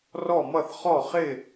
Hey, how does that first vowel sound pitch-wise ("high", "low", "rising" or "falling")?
falling